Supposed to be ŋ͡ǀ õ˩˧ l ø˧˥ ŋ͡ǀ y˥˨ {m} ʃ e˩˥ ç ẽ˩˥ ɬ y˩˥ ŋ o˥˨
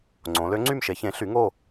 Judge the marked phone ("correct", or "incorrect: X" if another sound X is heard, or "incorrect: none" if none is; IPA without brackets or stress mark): correct